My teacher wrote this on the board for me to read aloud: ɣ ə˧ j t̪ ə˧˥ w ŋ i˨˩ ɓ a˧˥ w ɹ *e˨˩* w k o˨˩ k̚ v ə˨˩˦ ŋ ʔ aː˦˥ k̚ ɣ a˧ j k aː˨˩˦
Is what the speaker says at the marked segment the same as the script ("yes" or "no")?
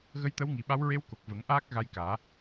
no